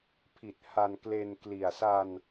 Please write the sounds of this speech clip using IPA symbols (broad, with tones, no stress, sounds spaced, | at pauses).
pʰ i˨˩ t̚ h a˧ n k l e˧ n k l i˨˩ a̯ s a˧ n